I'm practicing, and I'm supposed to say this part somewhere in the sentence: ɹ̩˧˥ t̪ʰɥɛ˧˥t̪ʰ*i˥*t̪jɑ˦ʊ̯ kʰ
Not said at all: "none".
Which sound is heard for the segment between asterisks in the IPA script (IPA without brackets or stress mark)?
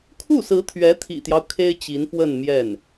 ḭ˨˩